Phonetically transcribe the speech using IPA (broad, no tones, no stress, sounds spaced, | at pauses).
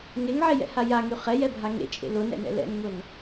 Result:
ŋ e ŋ ʕ e j ɛ̰ h a j a ŋ y χ ɛ j ɛ bʱ a ŋ ḛ t͡ʃʼ ḛ l ʊ n ɛ̰ n ɛ̰ l ɛ̰ n ŋ ʊ n